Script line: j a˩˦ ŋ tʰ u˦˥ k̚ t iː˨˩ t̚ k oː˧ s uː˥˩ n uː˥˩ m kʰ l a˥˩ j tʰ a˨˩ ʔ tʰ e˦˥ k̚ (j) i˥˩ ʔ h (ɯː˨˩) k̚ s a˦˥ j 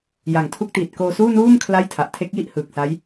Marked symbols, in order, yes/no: yes, yes

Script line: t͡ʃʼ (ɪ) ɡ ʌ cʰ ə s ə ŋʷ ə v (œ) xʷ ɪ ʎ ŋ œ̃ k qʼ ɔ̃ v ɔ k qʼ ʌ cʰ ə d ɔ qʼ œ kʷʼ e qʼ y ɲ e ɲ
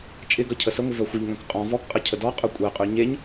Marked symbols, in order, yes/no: yes, yes

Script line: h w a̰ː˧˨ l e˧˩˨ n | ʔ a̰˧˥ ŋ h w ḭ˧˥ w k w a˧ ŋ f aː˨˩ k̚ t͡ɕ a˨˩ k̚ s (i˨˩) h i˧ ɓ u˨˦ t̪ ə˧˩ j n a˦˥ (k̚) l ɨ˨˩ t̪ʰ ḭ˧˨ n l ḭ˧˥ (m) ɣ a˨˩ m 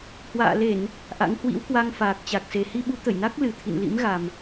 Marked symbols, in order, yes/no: no, yes, yes

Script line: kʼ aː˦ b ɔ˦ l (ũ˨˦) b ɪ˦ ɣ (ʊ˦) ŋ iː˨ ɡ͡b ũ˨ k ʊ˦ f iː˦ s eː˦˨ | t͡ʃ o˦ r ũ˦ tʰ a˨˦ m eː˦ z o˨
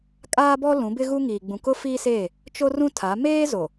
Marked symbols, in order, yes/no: yes, no

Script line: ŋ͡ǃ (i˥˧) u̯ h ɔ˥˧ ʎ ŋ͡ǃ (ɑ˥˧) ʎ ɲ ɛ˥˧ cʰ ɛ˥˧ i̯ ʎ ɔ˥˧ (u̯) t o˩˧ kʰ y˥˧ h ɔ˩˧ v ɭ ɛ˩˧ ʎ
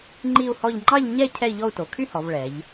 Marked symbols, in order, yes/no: yes, yes, yes

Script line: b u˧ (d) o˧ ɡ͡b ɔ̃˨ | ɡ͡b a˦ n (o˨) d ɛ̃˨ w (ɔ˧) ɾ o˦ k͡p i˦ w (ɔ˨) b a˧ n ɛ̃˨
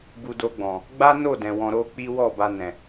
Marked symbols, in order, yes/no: yes, no, no, no

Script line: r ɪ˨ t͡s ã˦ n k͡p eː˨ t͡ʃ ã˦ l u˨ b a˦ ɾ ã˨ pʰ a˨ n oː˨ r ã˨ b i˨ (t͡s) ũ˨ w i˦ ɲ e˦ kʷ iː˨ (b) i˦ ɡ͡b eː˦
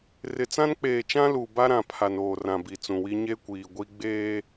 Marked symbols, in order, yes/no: yes, no

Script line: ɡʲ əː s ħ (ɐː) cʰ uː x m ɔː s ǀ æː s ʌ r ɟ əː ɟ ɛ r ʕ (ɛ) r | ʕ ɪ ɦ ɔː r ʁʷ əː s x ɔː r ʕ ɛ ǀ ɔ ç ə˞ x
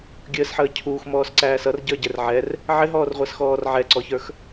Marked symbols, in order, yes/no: no, yes

